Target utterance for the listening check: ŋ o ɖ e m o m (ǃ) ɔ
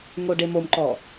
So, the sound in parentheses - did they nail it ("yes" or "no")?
yes